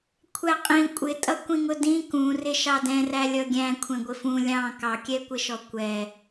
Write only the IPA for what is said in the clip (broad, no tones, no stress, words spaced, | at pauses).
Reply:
kʷʰæqʼĩ kʷʼɪ tʼʌkʷĩŋʊdĩ kũrɪ ʃɑdɛ̃ræ lʲʌɡʲæ̃ kʷʰɛ̃ɡʷɪfũ lʲɑ̃ kɑkʲɛkʷɪʃɔ kʷɛ